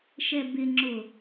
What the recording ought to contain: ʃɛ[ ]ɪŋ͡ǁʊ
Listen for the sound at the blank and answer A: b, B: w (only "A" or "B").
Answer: A